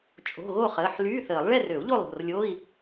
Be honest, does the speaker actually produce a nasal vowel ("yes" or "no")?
no